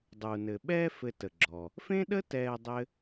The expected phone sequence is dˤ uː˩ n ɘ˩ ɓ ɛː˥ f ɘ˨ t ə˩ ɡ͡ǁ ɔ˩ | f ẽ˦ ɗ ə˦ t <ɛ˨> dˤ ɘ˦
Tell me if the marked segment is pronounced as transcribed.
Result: no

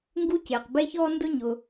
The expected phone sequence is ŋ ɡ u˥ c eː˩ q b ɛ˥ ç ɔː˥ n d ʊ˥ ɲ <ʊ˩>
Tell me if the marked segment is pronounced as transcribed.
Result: yes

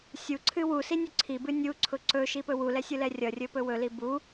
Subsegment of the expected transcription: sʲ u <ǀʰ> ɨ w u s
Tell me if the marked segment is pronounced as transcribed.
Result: yes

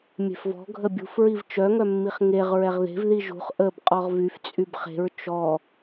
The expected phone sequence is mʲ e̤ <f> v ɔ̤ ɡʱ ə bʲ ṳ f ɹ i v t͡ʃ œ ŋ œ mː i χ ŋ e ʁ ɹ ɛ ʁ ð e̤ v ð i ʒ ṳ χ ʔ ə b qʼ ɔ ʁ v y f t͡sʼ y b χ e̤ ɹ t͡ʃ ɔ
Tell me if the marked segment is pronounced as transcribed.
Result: yes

